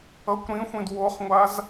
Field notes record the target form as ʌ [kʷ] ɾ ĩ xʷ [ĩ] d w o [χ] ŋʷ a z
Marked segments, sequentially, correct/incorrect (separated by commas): correct, correct, correct